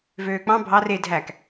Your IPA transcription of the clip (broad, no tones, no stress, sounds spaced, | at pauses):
v øː k͡p ɑ̃ bʱ ɑ r e dʱ æ k